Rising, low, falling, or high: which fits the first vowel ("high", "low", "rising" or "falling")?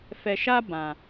low